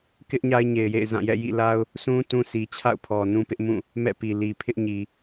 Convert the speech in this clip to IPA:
k ɪ˦ ʔ ɲ a˦ ɪ̯ ɲ e˨ ɪ̯ j ḛ˦˨ ɪ̯ z ã˦˨ j ɛ̰˦˨ j ḭ˦˨ l a˦ ʊ̯ | sʰ ũ˦ t ũ˦ sʰ i˨ t͡ɕʰ a̰˦˨ ʊ̯ pʰ ɔ˨ n ũ˦ p ɪ˦ ʔ m ũ˦˨ | m ɛ̰˦˨ p i˨ l i˨ pʰ ɪ˦ ʔ ɲ i˨

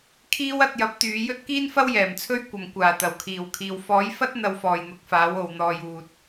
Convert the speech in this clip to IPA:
kʰ iː˥ w ɐ˧ t̚ j ɐ˨˥ p̚ t̪ yː˨˧ j ɵ˥ t̚ k iː˥ n f ɐ˥ w j ɛː˨˩ m t͡sʰ ɵ˥ ɥ kʷ ɐ˨ m kʷ aː˨˩ t̪ ɐ˨˩ w kʰ iː˨˩ w kʰ iː˨ w f ɔː˨˥ j f ɐ˥ t̚ n̪ ɐ˧ w f ɔː˨ j n̪ ʊ˨˥ k̚ f aː˨˥ w o˨ w n̪ ɔː˨ j uː˨ t̚

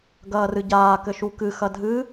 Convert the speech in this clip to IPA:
ɡ ɐː r ɨ ɟ aː k ɘ ʃ u k ɨ x ɐ dʱ ɨ

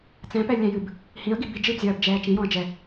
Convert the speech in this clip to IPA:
t͡s ɛ̃ p ɛ lʲ ɛ̃ j ɨ b | h ĩ ə̯ ɡ i b i d͡ʒ ɨ b zʲ ɐː b d͡ʒ ɛː t͡ʃ ĩ j ɔ̃ ə̯ d͡ʒ ɛ

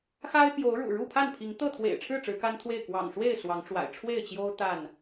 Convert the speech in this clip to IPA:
x a˦ ɪ̯ p j o˨˦ ʊ̯ ɻ ṵ˨˩ ɻ u˥˨ pʰ a˥˨ n pʰ i˨˦ ŋ t̪ ɤ˥˨ t̪ʰ w ḛ˨˩ ɪ̯ ʈ͡ʂʰ ɻ̩˥˨ ʈ͡ʂ ɻ̩˨˦ k a˦ n t̪ʰ w e˥˨ ɪ̯ k w ɑ̰˨˩ ŋ ʂ w e˥˨ ɪ̯ s w ɑ˨˦ ŋ ʈ͡ʂ w a̰˨˩ ɪ̯ ʈ͡ʂʰ w e˥˨ ɪ̯ t͡ɕ j o˦ ʊ̯ t̪ a˥˨ n

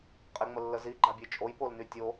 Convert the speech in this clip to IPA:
qʼ e ŋ͡m ə lː ə z i ɡ͡ǃ a bʲ e t͡ʃʼ o j p o l n y tʲ o

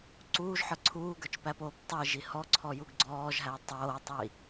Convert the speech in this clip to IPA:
ǀ uː ʒ ħ ə˞ ǀʰ uː ɡ ə˞ t͡ʃ p æ p oː p tˤ i ʒ i h ɔ ǀʰ ɔ j u ɡ ɡ͡ǀ ɔː ʒ ɦ æ tˤ oː tˤ i

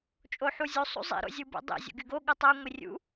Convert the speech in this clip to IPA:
t͡ʃʼ o ħ u zʲ u sˤ ṵ zˤ ḭ ɾ o̰ zʲ ɯ b ṵ dˤ ḭ zʲ o̰ ɡ y ɡ o ɠ ɯ tˤ o ŋʷ i rʲ ṵ

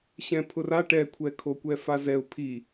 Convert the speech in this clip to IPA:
ɕ ɛ̃ pʰ ʊ r a ʈ ɛ kʷʰ ɛ kʰ o kʷ ɛ f a z ɛ ʊ̯ pʰ i

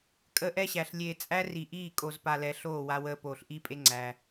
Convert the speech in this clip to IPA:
kʼ əː˦ ʔ ɛ˦ ɕ æ˨ ɬ lʲ eː˨ t͡sʼ æ˦ r i˨ ʔ iː˦˨ kʼ o˨ z p a˨ l ɛ˨ ɬ oː˦˨ w a˦ w əː˦ p oː˨ ɬ ʔ i˦ pʼ e˦ ŋ͡ǀ æ˦

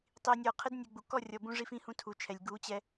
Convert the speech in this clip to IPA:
tˤ i˨ nʲ ɔ˨ qʰ ɘ˦ d nʲ u˨ ɡ͡b u˨ k ɔ˦˨ rʲ ɔ˨ b ũ˧ ʐ i˧ f ĩ˦˨ h ũ˧ tʰ u˨ t͡ʃʰ ɛ˨ lʲ ɡ u˨˦ t͡ɕ ɛ˧

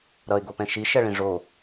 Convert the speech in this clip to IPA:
ɾ ʌ ɪ̯ ɡ o p ɛ̃ ʃ i ʃ ɛ ɭ ĩ ʐ o

